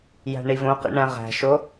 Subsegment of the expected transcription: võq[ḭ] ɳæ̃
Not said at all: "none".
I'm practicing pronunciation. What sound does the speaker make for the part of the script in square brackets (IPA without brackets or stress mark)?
ḭ